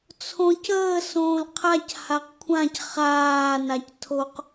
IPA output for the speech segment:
t͡sʰ õ c əː s õː l qʰ a c h a q kʷʰ ã c χ aː n a c tʰ o q

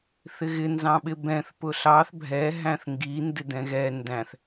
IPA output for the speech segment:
θ ɪ ɣ ɪ n z ɑ̃ ɓ ɪ b ɛ̃ θ p ʊ ɬ ɑ θ bʱ ɛ ɦ æ̃ θ ŋ ɡ i n d ɪ d ɛ̃ ɣ ɛ n d æ̃ θ

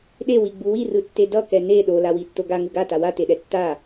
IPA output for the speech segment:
ɗ e w i ɡ͡b u w i r ɯ tː e d ʌ k ɛ n e ɗ o l a w i tː o ɡ a ŋ u ɡ a t a w a t e ɗ ɛ tː a

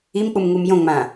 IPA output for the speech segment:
i m k͡p u m ŋ u m j õ ŋ͡m ã

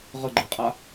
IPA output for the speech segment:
ʁ ə ɡ͡ǃ e qʼ a

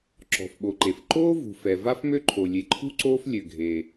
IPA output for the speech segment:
ǁ ɔ̤˩ f ɓ o˩ ǃ e˩ f ǃ oː˥ v ṳ˩ f ɛ˩ v a˥ f m ø˥ ǃʰ o˩ lʲ e˩ ǃʰ ṳ˥ ǀ oː˥ f lʲ ø˩ ɡʱ eː˩

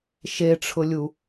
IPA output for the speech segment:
ʃ e ʈ͡ʂʰ ʊ lʲ u

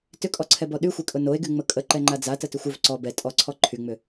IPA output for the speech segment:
t ʏ kʼ ɔ ǀʰ ɛ b ɔ ɗ y xʷ e kʼ ʊ n o e̯ ɡ y ŋ͡m ə kʼ ə ǃ ɛ ŋ͡ǃ a d͡z a t ə t ʏ xʷ ʏ v ǀ ɔ b ɛ tʼ ɔ ǀʰ ɔ ǃʰ y ŋ͡m ʏ

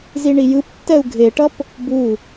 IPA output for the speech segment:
z i ɳ i j ɯ p tː ɛ u̯ ɡʱ e ʈ ʌ p | b u

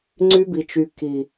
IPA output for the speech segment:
ŋ͡ǀ y˦ b i˨ t͡ʃ y˨ k i˨

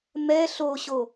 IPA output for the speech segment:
m ɛ ɬ o ɕ o

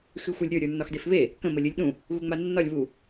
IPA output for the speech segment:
x ɨ xʷ ɘ lʲ ɾʲ ə˞ ɾʲ ə˞ nː ɒ x d e f β e | k ə̃ m ə lʲ ɨ lʲ ɗ ũ | ɣ u ŋ͡m a nː ɒ lʲ β u

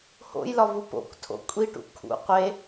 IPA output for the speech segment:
h o̰ j l ɒ v u p o̰ kʷ tʰ o̰ kʷʼ i ʈ ṵ kʰ ṵ qʷ e

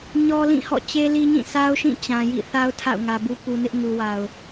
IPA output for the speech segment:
ɲ ɔ˦ l ĩ˦˨ h ɔ̰˦˨ t͡ɕ e˦ l i˦ ɲ ĩ˦˨ s a˦ ʊ̯ ʃ ĩ˦˨ t͡ɕ ã˨ j ḭ˦˨ θ a˦ ʊ̯ tʰ a̰˦˨ ʊ̯ ŋ ä˨ b u˦ p u˨ n ɪ˦ ʔ ŋ u˨ w a˨ ʊ̯

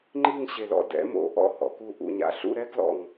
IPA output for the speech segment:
ŋ͡ǃ i˥˧ ŋ ɕ e˧˩ l ɔ̰˧ d ɛ̰˩˧ m o̰˩˧ ʔ ɔ̰˥˧ h ɔ̰˩˧ k u˥˧ ʔ ṵ˧ ɲ a̰˧ ɬ ṵ˥˧ ɾ ɛ˥ ɡ l ɔ̰˧˩ ŋ

